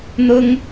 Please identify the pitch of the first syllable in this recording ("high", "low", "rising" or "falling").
high